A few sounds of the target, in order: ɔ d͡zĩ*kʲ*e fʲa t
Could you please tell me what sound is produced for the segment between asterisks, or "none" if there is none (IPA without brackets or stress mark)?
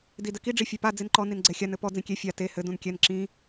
kʲ